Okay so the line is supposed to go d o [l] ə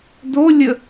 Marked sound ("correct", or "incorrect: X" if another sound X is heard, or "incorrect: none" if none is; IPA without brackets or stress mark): incorrect: lʲ